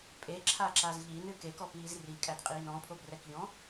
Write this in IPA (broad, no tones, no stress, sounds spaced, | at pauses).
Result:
pʼ e ǁʰ a ǁ a z ʎ i n ɨ k e k ɔ p iː z r i kʼ æ d qʼ iː n ɔ̃ pʰ o b r ɛ k ʎ ɔ̃